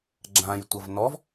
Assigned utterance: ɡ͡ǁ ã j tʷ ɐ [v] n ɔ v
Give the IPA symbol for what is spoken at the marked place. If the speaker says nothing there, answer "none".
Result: v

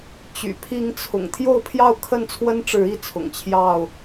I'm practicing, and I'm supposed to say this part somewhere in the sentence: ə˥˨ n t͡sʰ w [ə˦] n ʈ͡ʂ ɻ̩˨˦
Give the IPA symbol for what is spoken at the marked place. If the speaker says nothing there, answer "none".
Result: ə˦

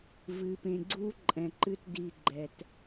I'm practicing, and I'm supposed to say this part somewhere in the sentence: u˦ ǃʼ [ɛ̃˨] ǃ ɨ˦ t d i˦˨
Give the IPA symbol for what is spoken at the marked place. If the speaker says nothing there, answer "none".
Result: ɛ̃˨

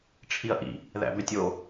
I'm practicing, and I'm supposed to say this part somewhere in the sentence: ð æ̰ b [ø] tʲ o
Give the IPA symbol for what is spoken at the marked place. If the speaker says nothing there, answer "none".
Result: ø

